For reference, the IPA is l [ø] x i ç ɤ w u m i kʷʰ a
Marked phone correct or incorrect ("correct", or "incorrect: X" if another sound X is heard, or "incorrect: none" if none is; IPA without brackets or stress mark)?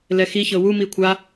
incorrect: ɛ